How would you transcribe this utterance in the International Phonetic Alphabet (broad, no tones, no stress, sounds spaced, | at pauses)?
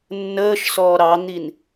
nː əː ʃ s ɔː ɾ ɑ n̪ i n